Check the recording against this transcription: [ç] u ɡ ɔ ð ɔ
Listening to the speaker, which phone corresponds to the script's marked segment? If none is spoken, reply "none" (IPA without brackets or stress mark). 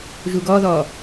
ʒ